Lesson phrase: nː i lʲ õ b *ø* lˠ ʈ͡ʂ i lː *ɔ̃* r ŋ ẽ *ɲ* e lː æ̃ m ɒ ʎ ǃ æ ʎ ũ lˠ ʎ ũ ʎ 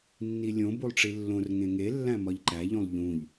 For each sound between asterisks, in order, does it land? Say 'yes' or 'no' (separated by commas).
no, no, no